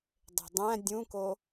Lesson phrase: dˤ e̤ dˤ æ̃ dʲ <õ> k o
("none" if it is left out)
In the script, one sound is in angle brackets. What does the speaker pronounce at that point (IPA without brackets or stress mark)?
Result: ũ